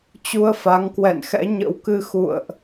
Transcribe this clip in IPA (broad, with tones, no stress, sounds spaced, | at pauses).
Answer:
t͡ɕ u˧ ə̯ f a˨˦ ŋ k w ɛ̰˧˨ n x ɛ̰˧˥ ɲ ə̰˧˥ w k ɨ˧ x ṵ˧˨ ə̯ ʔ